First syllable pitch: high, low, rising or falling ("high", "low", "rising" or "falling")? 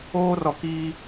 high